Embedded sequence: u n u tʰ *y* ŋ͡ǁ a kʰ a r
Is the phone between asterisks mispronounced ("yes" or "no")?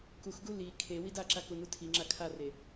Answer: yes